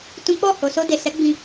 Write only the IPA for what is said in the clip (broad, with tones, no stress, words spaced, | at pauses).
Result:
tũ˦ k͡pɔ˦˨ ho˨so˧de˨sɛ˨˦ ɡ͡bĩ˧